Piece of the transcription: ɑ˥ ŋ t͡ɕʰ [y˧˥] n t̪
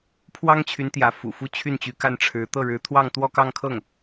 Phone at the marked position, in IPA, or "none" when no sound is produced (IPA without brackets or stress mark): y˧˥